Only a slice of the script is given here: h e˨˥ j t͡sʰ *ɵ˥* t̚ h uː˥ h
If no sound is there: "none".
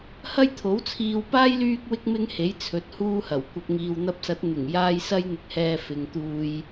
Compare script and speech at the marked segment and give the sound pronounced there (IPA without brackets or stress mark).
ɵ˨˥